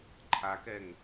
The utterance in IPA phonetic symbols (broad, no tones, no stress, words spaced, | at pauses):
ǃʰakɛŋ